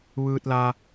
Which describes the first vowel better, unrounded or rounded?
unrounded